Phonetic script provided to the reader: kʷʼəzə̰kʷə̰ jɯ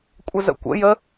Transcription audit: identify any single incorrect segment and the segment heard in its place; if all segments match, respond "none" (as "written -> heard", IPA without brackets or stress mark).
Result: ɯ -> ə